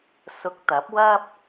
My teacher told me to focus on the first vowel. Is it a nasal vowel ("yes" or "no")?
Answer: no